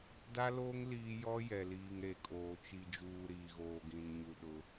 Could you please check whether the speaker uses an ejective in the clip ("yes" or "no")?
yes